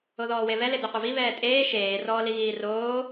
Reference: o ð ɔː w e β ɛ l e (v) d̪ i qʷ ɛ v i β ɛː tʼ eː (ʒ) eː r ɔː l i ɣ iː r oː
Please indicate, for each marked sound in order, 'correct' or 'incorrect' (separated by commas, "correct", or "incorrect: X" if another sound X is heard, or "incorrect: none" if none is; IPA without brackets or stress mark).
incorrect: none, incorrect: ʃ